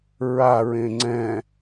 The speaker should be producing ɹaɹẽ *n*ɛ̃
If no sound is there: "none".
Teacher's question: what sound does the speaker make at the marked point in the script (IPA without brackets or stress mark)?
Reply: ŋ͡ǀ